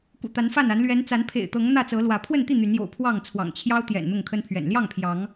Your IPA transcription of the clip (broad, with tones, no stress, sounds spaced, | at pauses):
k ṵ˨˩ t̪ a˨˦ n f a˥˨ n a˨˦ n l ɥ ɛ˨˦ n t͡s a˨˦ n pʰ ḛ˨˩ ɪ̯ t̪ ɤ˨˦ ŋ n̪ ä˥˨ t͡s ɤ˨˦ l w ä˨˦ pʰ w ə˥˨ n t̪ i˥˨ n̪ y˨˦ n j o̰˨˩ ʊ̯ pʰ w ɑ˥˨ ŋ t͡sʰ w ɑ̰˨˩ ŋ t͡ɕʰ j ɑ˦ ʊ̯ t̪ j ɛ̰˨˩ n n̪ ʊ˥˨ ŋ kʰ ə˦ n pʰ ɥ ɛ̰˨˩ n l j ɑ˥˨ ŋ pʰ j ɑ˨˦ ŋ